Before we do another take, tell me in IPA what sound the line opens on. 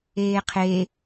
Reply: eː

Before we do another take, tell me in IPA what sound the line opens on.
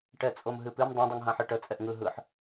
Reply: ʈ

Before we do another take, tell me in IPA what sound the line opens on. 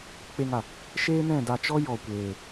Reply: k͡p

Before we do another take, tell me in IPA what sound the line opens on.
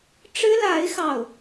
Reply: ʈ͡ʂ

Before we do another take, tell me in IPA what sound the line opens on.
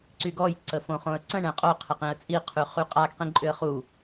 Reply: ǀ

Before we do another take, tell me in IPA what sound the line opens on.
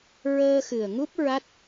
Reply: ɹ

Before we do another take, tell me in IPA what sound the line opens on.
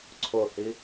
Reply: ǀʰ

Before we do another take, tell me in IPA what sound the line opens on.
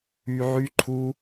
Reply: y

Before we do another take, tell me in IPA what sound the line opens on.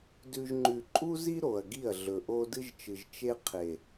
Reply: d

